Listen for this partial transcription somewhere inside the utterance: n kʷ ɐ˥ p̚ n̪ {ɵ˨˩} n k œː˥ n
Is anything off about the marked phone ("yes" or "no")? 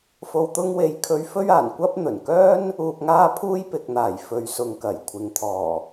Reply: no